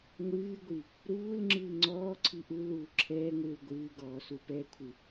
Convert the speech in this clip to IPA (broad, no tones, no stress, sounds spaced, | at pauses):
ŋʷ ɨː ɡʷ i | ɾ uː l ŋ͡ǁ ɨː ŋ͡ǀ ɔː ǀʰ i ʔ u l uː ǁʰ ɛː ŋʷ ɨː l ɡʷ ɨː ɡ ɔː s u p ɛ kʷʰ ɨ